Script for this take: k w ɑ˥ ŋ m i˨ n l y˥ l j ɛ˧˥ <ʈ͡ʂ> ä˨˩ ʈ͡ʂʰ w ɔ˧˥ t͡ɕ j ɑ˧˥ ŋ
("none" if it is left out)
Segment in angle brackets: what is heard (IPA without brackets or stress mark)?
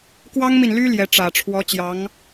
ʈ͡ʂ